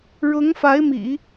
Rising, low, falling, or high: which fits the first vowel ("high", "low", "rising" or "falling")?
rising